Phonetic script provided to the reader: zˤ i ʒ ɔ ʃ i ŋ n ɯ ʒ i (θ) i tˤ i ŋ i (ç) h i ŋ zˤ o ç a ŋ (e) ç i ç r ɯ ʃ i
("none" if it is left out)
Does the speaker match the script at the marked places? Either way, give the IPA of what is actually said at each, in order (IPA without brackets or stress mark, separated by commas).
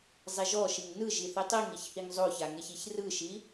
θ, ç, e